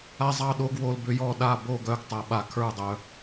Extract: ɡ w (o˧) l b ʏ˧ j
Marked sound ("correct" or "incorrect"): correct